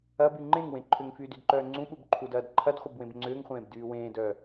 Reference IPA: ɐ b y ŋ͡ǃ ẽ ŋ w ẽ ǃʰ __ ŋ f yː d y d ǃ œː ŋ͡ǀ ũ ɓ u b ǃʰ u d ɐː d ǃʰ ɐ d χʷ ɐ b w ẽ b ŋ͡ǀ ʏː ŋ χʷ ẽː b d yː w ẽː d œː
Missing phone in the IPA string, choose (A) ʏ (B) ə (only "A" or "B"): A